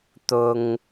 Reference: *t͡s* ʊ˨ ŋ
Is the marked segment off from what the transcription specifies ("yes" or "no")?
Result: yes